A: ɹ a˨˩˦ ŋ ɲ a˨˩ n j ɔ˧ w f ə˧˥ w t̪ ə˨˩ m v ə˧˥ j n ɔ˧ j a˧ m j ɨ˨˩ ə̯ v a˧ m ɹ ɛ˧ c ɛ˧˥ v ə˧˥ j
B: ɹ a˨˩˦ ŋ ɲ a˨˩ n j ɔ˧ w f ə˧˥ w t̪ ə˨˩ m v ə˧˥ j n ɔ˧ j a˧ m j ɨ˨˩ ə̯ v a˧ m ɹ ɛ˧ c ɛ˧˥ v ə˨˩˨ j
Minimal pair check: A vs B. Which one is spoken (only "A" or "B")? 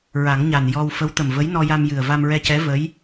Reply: A